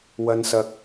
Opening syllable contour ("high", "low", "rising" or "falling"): low